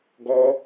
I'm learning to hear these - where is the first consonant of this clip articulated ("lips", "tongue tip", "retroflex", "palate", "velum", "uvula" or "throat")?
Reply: velum